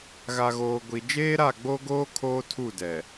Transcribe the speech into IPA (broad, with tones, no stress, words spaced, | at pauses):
ɣa˨ɣoː˨ ɡʷi˨ d͡ʒeː˦ɾa˦˨ɡ͡bo˦ɡoː˦ kʰoː˦tʰu˦˨dɛ˨